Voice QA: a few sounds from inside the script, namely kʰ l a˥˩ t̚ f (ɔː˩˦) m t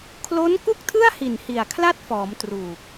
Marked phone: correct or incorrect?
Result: correct